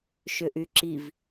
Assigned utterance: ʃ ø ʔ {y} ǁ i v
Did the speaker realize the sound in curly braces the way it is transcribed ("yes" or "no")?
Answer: yes